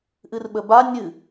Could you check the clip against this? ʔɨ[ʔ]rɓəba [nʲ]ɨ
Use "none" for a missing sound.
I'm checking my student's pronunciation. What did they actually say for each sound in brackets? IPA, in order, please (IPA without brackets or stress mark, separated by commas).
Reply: none, nʲ